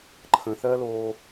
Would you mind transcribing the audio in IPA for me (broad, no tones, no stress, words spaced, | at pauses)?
ǃʰə̃θɜloː